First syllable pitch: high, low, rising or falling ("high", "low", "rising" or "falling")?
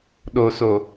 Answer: low